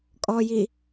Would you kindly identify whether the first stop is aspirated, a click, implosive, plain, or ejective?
ejective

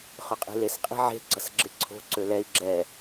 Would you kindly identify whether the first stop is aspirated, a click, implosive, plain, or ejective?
ejective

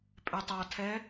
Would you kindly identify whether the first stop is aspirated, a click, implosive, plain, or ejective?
ejective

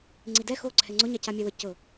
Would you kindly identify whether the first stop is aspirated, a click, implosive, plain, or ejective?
click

